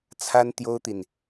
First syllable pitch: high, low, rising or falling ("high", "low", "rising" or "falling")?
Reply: high